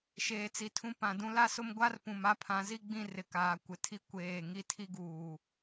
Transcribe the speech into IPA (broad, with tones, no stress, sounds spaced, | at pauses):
ʃ eː˨ t͡s i˨ tʰ ũ˦ p ã˨ d ũ˦ l a˦ s ʊ˦ m ɡʷ a˦ r p ũ˨ m a˦ pʰ ã˨˦ z i˦ ɡ͡b ĩ˦˨ r ɪ˨ k aː˨ kʷ ɪ˨ tʰ i˦ kʷ eː˦˨ ŋ i˦ tʰ i˦ ɡ uː˨